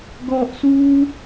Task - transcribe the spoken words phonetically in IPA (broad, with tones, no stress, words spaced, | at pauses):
ɡɔ˨ʔsuː˦